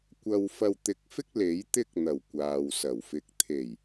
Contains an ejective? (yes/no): no